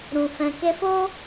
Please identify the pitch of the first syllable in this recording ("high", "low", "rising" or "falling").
low